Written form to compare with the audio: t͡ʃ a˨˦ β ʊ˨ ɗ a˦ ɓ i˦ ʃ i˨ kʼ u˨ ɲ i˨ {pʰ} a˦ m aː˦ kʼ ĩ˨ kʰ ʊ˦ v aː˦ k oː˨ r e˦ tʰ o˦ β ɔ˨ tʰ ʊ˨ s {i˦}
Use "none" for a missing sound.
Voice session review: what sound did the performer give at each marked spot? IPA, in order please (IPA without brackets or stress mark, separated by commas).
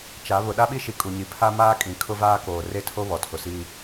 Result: pʰ, iː˦